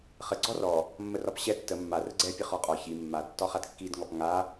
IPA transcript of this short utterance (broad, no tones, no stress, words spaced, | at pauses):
χə ɡ͡ǀɔrɔ | mːərɒpɕɛ tːə mːa rəɡ͡ǀɛ pʲəχɔqʼɒ çi mːad tːɒχadkːid ŋɔpŋa